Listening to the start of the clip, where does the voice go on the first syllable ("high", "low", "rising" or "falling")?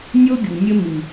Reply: high